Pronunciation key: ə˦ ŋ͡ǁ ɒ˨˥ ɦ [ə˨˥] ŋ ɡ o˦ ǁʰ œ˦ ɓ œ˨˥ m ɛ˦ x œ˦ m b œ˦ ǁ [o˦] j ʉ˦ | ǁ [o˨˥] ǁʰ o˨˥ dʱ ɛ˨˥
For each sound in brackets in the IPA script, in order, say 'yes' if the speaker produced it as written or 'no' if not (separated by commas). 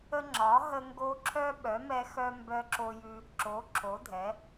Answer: no, yes, yes